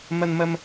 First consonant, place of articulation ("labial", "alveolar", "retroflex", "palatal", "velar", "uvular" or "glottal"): labial